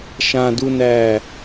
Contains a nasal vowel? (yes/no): yes